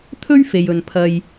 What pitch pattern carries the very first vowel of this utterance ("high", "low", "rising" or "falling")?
high